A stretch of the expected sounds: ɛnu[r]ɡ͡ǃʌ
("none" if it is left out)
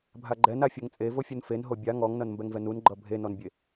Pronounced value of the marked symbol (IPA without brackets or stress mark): n